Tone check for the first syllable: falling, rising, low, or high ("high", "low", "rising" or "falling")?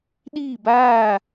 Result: falling